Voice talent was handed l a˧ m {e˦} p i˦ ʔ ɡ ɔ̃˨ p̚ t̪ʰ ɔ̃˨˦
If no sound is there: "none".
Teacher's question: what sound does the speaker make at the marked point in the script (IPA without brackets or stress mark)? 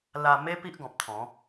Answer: e˦